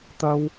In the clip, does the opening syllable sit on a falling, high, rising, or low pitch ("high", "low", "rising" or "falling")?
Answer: high